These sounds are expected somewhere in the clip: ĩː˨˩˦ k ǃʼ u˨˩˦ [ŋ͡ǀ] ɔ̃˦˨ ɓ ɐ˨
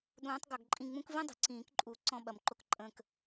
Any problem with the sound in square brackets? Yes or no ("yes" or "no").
yes